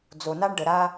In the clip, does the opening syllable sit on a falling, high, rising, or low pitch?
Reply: low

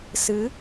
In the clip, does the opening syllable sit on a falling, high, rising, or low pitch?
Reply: rising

